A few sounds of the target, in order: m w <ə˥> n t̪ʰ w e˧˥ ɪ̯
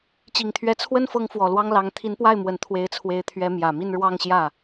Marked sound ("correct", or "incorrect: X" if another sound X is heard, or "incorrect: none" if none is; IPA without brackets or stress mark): incorrect: ə˨˩